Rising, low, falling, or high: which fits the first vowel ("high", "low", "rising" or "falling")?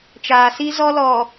low